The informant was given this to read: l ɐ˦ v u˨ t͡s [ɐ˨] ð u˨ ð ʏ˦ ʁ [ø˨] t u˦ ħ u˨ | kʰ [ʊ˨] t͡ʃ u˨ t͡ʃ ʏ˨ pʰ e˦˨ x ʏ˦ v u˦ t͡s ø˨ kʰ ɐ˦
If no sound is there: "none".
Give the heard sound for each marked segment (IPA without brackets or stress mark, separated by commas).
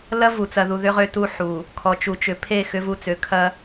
ɐ˨, ø˦, ɔ˨